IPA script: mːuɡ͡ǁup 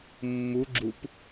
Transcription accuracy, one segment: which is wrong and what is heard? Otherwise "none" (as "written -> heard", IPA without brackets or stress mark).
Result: none